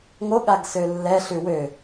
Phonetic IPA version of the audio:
ŋ o ɠ a ɡ s ø lː ɛ ɬ ʉ w ø

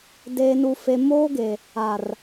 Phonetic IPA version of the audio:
d eː˨ n u˨ f e˨ m oː˦ ɡ e˨ | a˨ r

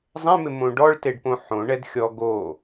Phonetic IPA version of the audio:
zˤ ɛ̃ m ɪ m õ ɖ ɔ ɭ t e ɖ p õ ħ õ ɳ ɛ d xʲ ɔ ɡ o

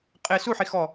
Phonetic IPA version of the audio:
qʼ ɪ s u ħ i x ɔ

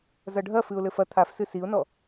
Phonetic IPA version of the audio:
z ɐ ɖʱ ɐ f ɨ ʊ̯ l ɘ f ɐ t̪ʰ a f s ɨ s i ʊ̯ n ɔ

